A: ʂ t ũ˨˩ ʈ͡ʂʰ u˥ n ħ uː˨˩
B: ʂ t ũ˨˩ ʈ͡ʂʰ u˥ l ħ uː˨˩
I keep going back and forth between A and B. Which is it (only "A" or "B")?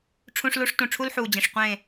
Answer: B